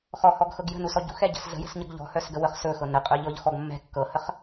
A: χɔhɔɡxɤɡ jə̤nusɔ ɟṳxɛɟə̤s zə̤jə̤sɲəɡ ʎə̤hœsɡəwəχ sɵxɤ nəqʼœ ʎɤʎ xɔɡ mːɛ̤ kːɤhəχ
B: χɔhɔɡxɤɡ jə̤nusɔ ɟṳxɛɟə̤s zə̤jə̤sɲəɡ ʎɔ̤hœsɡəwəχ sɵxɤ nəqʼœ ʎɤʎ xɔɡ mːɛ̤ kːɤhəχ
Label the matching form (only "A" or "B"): B